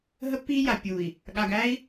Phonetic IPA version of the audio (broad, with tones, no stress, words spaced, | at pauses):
ɦə˦pːiː˦ja˨ pʲuː˨i̯ | ɠa˨ɡæː˦i̯